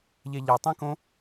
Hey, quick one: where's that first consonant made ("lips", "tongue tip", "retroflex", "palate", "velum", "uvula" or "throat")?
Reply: palate